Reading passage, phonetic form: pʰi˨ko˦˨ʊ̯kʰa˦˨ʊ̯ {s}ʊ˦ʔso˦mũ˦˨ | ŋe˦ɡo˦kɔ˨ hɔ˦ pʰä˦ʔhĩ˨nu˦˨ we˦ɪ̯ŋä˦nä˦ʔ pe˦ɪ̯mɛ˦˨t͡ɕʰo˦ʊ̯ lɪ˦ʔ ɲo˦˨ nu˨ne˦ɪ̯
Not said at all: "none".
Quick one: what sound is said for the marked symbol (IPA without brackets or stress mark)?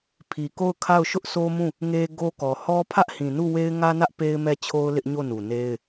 ʃ